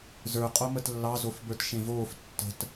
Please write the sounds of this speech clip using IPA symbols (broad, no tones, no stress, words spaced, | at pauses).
zə˞ qʼomətlːɑ zofbə˞tʃẽvoːf tːə̤t